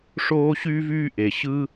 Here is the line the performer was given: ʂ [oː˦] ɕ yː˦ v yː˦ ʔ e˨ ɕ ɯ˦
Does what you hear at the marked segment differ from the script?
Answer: no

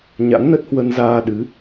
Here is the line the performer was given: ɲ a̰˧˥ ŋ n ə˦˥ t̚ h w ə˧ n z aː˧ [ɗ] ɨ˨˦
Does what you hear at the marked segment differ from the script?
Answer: no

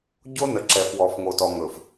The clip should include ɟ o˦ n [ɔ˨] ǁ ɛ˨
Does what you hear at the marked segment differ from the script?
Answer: yes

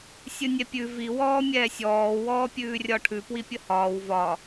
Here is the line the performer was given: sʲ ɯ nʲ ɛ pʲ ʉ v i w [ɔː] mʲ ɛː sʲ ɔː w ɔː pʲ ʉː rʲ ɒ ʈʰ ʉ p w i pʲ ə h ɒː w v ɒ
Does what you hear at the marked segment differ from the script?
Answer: no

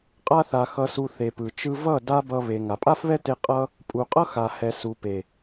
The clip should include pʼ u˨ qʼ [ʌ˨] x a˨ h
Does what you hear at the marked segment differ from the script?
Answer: yes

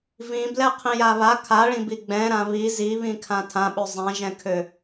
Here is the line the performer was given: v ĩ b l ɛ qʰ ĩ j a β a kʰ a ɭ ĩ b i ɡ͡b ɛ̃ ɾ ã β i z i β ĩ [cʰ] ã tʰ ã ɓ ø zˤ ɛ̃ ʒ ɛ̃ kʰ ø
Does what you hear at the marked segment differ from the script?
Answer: yes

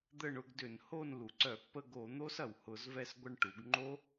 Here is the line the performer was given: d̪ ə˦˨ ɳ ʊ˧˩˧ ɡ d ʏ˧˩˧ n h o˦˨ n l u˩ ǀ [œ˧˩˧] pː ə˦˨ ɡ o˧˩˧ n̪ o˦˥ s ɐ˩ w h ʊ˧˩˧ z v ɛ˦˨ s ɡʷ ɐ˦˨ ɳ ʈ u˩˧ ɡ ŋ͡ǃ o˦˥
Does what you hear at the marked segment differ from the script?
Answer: no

